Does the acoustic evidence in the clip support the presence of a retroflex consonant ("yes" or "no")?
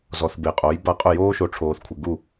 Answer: yes